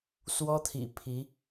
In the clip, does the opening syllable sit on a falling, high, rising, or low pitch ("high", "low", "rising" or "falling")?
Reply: high